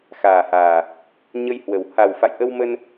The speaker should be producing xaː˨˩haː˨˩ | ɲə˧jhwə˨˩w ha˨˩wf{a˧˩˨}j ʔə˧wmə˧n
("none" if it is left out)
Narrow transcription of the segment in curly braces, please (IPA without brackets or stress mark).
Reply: a̰˧˨